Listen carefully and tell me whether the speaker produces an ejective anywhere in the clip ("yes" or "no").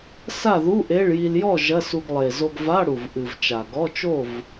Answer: no